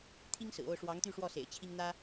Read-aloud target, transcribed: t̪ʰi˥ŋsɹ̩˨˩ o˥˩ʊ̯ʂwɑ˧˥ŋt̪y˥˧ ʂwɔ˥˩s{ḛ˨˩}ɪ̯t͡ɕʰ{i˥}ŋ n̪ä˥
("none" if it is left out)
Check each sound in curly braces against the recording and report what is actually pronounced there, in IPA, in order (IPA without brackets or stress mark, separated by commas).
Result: ḛ˨˩, i˥